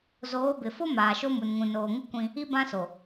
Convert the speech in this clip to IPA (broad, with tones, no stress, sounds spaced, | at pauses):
z oː˨˦ b ɪ˨ f o˦ m aː˨ ʃ o˦ m u˨ n ŋ ũ˨ n oː˨ ŋ ɪ˦ kʷ ĩ˦ | i˦ b ã˦ s o˨